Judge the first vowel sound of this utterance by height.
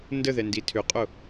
mid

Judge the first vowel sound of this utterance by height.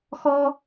mid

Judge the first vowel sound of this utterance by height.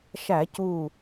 low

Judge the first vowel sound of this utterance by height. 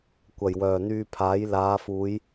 low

